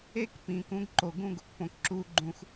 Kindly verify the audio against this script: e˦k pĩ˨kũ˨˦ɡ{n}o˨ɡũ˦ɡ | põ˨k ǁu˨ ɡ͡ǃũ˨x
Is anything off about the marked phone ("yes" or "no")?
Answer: yes